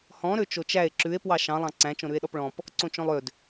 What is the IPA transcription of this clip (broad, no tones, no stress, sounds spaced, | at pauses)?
h ɔ̃ ɾ ø t͡ʃ o t͡ʃ æ e̯ ǁ ʉ e̯ p w ɑ ʃ ɑ̃ lˠ ɑ̃ ǀ æ̃ t͡ʃ õ ɾ ʉ e̯ ɗ ɔ p ɭ ɔ̃ p | ǀ õ t͡ʃ õ lˠ ø d